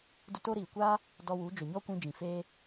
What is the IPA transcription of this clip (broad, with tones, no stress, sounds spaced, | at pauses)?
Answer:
d u˧ t o˦ ɾ iː˨ kʷ aː˦ | d ɔ˧ w u˨˦ d͡ʒ o˨ ɲ ɔ˦ kʷ ĩ˧ d͡ʒ ĩ˨ f eː˦